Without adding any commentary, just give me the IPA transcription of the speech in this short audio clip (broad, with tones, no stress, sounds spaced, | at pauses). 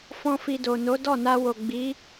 f ɔ̃˦ f i˧ d o˨ n o˨˦ d ɔ˦˨ n a˧ w o˨ ɡ͡b i˨˦